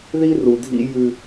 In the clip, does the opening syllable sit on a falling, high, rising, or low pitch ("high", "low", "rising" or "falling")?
high